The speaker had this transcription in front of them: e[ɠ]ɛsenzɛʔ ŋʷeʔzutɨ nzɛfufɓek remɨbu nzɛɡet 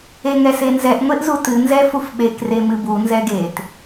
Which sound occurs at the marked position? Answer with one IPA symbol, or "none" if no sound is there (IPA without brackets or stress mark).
ŋ